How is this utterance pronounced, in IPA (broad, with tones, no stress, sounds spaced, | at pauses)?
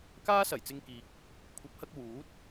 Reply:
k aː˥ s ɐ˨˩ j t͡s ɪ˧ ŋ k iː˨ k̚ | kʷʰ ɐ˨˥ p̚ h ɐ˧ k̚ w uː˨˥ t̚